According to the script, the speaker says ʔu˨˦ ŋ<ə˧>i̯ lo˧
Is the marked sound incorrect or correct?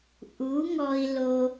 incorrect